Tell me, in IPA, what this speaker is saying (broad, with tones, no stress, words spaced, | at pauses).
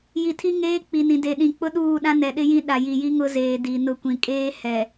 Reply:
ji˨tʰi˦ ŋeː˦ k͡pi˨nĩ˨de˨ɗĩ˨ k͡pʊ˦ɗuː˦˨ɗã˦ nɛ˨ɗɪ˦jĩ˦ ɗa˨ji˨ ji˦ŋʊ˦zeː˨ di˨nʊ˦˨ kʷĩ˨kʼeː˦ hɛ˨